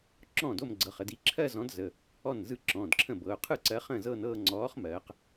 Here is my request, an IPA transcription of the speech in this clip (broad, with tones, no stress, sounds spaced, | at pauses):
ǁ ɔ̃ː˥˩ d o˥˧ m ɡ͡ǀ ɤ˩˧˩ χ ə˩˧ d i˨˥ ǁʰ ɜ˥˧ z ɔ̃˨˥ d z ə˩˧˩ | ɔ˥˩ n z ɯ˥˩ ǁ ɔ̃ː˩˧˩ d ǁʰ ə̃˥˩ b ɤ˩˧˩ ʊ̯ qʰ ɯ˥˩ ǀ ɜ˨˥ χ ə̃ː˥˩ z ɤː˥˧ n ɤː˥˧ ŋ͡ǀ ɔː˨˥ χ m ɜː˩˧ q